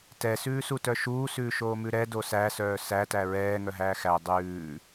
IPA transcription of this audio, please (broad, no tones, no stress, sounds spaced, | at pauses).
t ɛ s ʉː s u t œ ʃ uː s ʉː ʃ oː m ʉ ɾ ɛ d o s æ s œː s æ t æ ɹ ɛː ŋ œ ɦ æː x æ dˤ ʉː